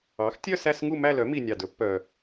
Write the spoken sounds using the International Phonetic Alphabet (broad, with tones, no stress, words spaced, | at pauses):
ɑ˩˥xtʲœ˥˧ sæ˥˧sŋu˥˧ mæ˥˧ lœ˩˥mi˨˩ nʲɑ˨˩dɵ˩˥ pːœ˨˩